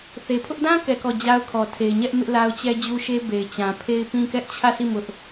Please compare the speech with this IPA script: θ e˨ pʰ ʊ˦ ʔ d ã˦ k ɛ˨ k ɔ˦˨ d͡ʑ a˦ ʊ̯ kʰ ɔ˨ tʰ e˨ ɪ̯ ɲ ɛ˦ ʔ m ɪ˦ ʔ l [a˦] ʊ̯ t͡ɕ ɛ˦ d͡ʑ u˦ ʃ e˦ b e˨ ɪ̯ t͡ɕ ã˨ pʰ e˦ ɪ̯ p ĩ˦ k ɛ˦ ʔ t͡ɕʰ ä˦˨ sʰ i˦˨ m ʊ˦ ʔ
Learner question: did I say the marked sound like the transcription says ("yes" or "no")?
yes